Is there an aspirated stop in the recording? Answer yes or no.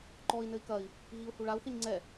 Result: no